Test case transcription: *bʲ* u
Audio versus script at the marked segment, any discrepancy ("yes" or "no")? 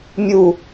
yes